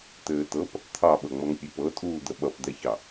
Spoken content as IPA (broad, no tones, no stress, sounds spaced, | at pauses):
t̪ ɘː t̪ ɤ p | t̪ʰ ɑ ɓ ɤ ŋ͡m ʌ ŋ pʲ ɘ p ɤ tʼ uː d̪ ə ɓ ʌ p d̪ ɛ ç ɑ